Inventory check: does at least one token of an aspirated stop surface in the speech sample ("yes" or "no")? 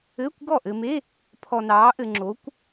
yes